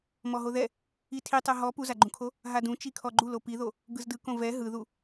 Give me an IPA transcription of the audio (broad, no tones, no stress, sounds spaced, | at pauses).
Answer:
m ɔ ɦ o ð ɛ | i tʰ i tˤ ɛ ɦ ɔ p u z a ɡ͡ǃ ũ kʰ o | ɦ a d ũ t͡ʃ i kʰ ɔ ɡ͡ǃ u l o p i ð o | ɡ ɯ z d ɯ k õ v ɛ ɦ ɯ ð u